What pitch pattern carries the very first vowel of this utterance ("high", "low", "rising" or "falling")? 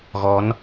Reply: rising